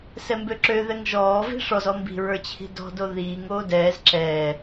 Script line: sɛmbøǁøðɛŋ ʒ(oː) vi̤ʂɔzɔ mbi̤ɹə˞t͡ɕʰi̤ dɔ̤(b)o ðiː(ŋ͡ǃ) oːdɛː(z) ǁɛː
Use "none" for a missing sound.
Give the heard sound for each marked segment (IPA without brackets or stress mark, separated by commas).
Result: ɔː, d, ŋ, z